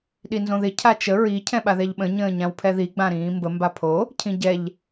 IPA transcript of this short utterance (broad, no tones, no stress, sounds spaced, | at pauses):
ɗ i n z õ ð ɪ cʰ a t͡ʃ ə ɹ i cʰ ɛ̃ ɓ a ð ɛ ʎ ɓ ə̃ ɲ ə̃ː ɲ ã w pʰ ɛ ð i ɡ͡b ã ɾ ĩː m b ə m b a pʰ o | cʰ ĩ ɟ ɛ ʎ